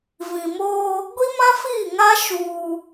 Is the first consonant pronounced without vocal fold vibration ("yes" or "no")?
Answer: no